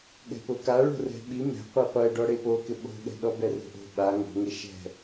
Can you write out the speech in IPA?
ɠɛ̤pʊka ɭo̤rɛ̤ɓi mɛ̤ qʷiqʷɛɖɔɽe pokɪ ɓo̤ɠɛ̤ɗɔ bɛro̤ʔo̤ ɓa ŋo̤ŋe ʃɛ̤

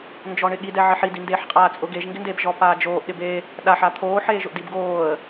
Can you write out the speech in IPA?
nd͡ʒɔɳɪɠi dɛʕɪħid indeːħqʼaːt͡sʼʊ ɡeʒ ŋɡɪndebʒɔ paːd͡ʒoːʔ ɗɪbe | ɗaħ at̪ʰoː ħeːʒʊʔdibɡoːə̯

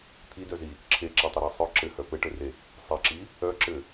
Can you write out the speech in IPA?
t̪ʰidœzi | ǁʰeǁatˤɘɾi sˤœ ǁɘhœ pɘʈɘre | sˤeǁi | œǁɘ

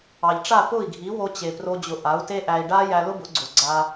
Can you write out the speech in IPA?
ɑ˩ʎʈ͡ʂa˥˩ pʊ˥˩i̯ɡʱi˩˥wo˧t͡ɕe˩ pro˧d͡ʑʊ˩˥ʔ a˩˥u̯te˥ʔæ˧i̯ ɖa˥jæ˧lʊ˥ bʊ˩˥ɡ͡ǀʊ˩ ɡ͡ǀa˧

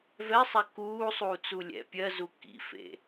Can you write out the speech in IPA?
vɛsˤɛ kuː sˤuːt͡sulʲɛ̰ pʲɜ zukḭfḛ

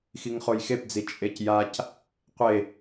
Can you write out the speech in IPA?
xiŋχojxepd͡zi t͡ʃʼecjac | qʷe

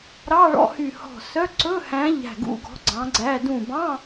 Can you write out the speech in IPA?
ɾɑ˧˥˧ɭɔ̰˧˥˧hy˧˩hɔ̤˧˩ sœ˧˥˧ ǀɵ˧˥˧hæ̃˨˥ ʎæ̤˧˩ɡṵ˧˥˧ɡɔ̤˨˥ ɡ͡ǀɑ̃˨˥ɡ͡ǀæ˧˥˧ dũ˧˩bɑ̃˧˥˧

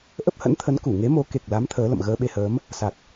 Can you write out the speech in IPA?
ʔə˦˥p̚hə̰˧˥nt̪ʰə˨˦n ku˧˩ŋe˨˦mo˨˦ ke˨˩k̚la˨˦m t̪ʰəː˨˦lə̰˧˨m ɣəː˧ɓe˧həː˨˦m | sa˨˩k̚

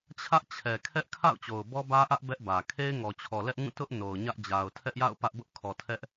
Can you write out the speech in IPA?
t͡ɕʰä˦ʔt͡ɕʰɛ˨kʰɛ˦ʔkʰa̰˦˨ʊ̯ t͡ɕo˨ʊ̯bɔ˦bä˦ʔä˦ʔ bɛ˦ʔbä˨ kʰe˦ɪ̯ŋɔ˨t͡ɕʰɔ˨ lɛ˦ʔŋũ˦˨ tʊ˦ʔ no˨ʊ̯ɲä˦ʔ d͡ʑa˨ʊ̯tʰɛ˦ʔja̰˦˨ʊ̯ pä˦ʔbʊ˦ʔ kʰɔ˨tʰɛ˦ʔ

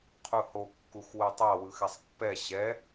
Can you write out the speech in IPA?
qʰuho kːuxwɯtˤa wɯxɛsˤpːɛ ɕɛ

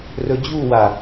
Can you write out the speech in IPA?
rɵd͡ʑuwa

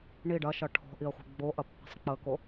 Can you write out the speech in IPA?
ɳi ɖɐʃɐ ʈʰɔ̤ʔiə̯χʷi̤ ɡ͡boʔɐpːi̤sˤ k͡pəko

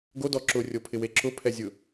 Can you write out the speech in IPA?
ɡodɔ ǁʊrʲopʰɪwe ǁʊpʰɛzʲʊ

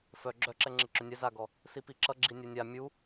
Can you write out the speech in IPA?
fœ ɡ͡ǁœǁɛŋ͡ǁɪ ǁʏnʲɛ zaɡɔ | sipiǁʌ ɡ͡ǁinʲœnʲa mʲu

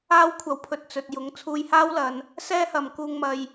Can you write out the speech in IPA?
aː˥w kʷʰɐ˧wpʰɵ˧t̚t͡sɵ˨t̚jʊ˨˧ŋ t͡sʰuː˧jhaː˥wlɐ˨˧n | sɛː˥hɐ˨mkuː˧ŋ mɐ˧j

